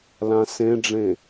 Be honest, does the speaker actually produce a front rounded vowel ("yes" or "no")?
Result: no